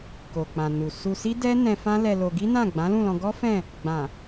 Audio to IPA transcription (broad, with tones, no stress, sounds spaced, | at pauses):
k o˨ k͡p ã˨ n u˨ s u˧ s i˦ d ɛ˦ n ɛ̃˧ f ã˦ l ɛ˧ l o˧ ɡ i˦ n ã˦˨ ɡ͡b ã˨˦ l ũ˦˨ l ɔ̃˧ ɡ ɔ˦ f ɛ̃˦˨ | ɡ͡b ã˨